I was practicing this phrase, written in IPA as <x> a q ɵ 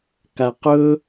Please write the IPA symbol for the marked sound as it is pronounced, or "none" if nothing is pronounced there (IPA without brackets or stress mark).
k